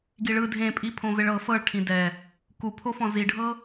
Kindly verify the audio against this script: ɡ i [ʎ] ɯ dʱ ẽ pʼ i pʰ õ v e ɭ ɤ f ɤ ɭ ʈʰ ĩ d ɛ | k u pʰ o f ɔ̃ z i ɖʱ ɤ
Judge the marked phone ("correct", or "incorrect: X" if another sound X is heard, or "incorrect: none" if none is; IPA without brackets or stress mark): incorrect: ɭ